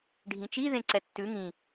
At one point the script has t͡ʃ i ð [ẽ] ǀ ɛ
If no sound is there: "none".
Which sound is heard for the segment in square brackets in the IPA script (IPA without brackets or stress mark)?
ẽ